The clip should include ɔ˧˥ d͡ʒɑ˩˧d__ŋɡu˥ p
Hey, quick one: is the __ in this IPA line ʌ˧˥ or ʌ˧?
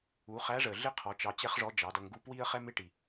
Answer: ʌ˧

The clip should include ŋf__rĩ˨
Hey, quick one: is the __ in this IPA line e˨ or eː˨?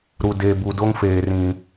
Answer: eː˨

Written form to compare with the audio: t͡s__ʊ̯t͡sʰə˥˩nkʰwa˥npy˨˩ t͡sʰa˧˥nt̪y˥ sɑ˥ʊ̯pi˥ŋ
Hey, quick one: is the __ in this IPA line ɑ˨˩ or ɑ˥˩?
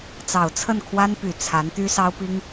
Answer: ɑ˨˩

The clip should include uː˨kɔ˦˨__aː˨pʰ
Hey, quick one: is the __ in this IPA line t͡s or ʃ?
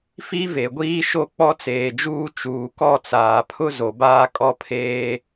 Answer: t͡s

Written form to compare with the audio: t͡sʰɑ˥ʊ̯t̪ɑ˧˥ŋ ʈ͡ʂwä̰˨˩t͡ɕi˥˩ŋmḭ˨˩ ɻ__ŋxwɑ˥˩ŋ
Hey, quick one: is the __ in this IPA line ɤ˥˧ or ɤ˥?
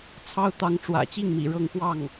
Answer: ɤ˥˧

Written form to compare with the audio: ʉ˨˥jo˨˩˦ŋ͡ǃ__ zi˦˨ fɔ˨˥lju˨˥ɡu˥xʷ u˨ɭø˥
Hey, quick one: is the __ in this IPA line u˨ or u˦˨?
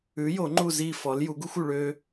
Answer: u˦˨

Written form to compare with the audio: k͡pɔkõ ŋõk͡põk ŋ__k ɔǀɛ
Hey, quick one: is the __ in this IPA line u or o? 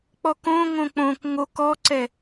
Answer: o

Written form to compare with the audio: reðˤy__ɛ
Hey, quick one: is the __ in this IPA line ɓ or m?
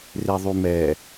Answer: m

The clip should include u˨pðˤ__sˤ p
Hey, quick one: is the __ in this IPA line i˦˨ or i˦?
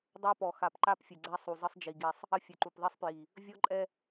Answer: i˦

